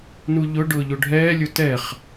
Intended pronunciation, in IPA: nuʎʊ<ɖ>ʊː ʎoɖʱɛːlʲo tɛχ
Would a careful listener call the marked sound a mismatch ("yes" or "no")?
no